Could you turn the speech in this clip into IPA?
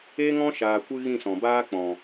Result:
e˦ŋɔ̃˦ʃaː˨kʷɨ˧ ɣĩ˦˨sɔ̃˨baː˦ k͡pɔ̃˨

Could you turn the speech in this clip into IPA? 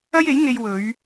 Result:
ɐ˥je˨˥jŋe˧j wɵ˨˧ɥ

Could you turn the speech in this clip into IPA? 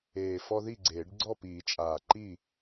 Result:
eː˨˩fɔ˦ ði˥˨ɡ͡ǀeː˨˩˦ɖ ɡ͡ǀɔ˥˨piː˨˩˦t͡ʃʼaː˨˩ǃi˥˨

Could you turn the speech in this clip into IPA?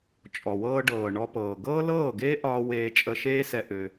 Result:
t͡ʃʼɔ˨wɤː˧ɖɤː˨ ɳɔ˧pɤː˨ ɡɤː˦lɤː˦˨ɡeː˦ ʔɒː˧ weː˧t͡ʃʼə˧ʃeː˦sɛ˧ ʔø˧

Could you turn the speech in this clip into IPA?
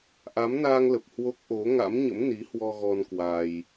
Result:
ʔa˨˦mnaː˧ŋlə˨˩p̚ hwo˦˥k̚ ʔo˨˦ ŋa̰˧˥mɲə̰˧˥mni˨˦hwɔ˧ ɣɔ˧n kwa˧j

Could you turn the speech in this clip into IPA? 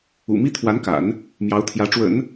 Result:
ṵ˨˩mi˥ t̪ʰwa˧˥nka̰˨˩˦n | mjɑ˧˥ʊ̯t̪ʰjä˧˥ ʈ͡ʂwə̰˨˩˦n

